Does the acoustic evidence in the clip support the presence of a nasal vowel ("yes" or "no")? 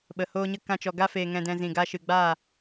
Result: yes